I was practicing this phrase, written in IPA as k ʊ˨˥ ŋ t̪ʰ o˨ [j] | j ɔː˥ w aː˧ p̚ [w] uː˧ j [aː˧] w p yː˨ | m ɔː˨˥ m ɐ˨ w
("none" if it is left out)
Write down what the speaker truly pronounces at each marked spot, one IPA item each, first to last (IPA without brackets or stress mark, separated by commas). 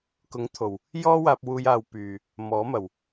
w, w, aː˧